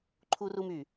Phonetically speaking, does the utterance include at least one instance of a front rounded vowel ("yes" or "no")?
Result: yes